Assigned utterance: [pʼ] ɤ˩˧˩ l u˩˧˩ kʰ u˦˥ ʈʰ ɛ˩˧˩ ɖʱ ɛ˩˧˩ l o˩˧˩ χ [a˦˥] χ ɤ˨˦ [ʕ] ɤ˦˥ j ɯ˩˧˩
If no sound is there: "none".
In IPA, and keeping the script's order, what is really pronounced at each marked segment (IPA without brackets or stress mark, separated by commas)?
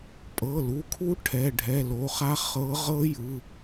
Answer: pʼ, a˦˥, ʁ